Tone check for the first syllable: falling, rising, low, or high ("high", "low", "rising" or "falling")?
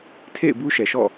falling